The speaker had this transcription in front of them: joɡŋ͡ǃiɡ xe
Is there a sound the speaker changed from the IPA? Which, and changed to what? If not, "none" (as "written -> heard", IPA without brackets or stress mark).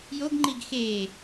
none